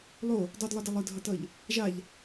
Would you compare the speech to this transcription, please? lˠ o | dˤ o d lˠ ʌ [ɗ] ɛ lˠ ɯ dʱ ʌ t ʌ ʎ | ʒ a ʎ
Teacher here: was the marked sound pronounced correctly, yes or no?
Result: no